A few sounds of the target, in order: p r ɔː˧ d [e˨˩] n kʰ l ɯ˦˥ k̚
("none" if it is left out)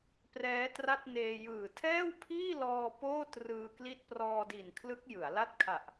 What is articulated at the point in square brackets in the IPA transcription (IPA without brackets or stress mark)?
i˨˩